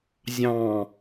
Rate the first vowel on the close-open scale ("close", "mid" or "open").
open